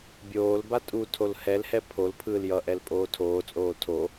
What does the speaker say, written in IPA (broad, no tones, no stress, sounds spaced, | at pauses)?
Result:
bʲ oː l b a tʼ u tʰ o l h ɛ l h ɛ pʰ o l pʰ ɯː l j ʌ ʔ ɛ l pʼ oː tʰ oː t͡sʼ oː tʰ o